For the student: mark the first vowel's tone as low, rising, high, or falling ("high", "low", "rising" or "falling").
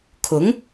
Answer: rising